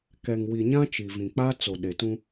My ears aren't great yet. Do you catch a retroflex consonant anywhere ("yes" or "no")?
no